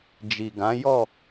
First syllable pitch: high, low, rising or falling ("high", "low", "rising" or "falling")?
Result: low